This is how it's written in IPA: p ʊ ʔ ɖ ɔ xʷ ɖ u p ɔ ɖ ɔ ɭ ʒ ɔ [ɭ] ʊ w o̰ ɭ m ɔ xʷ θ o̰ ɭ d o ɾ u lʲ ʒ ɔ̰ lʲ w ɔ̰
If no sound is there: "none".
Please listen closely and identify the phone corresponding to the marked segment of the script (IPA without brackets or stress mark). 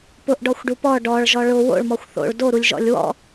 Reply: ɭ